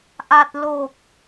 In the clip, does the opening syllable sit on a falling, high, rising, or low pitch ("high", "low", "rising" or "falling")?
low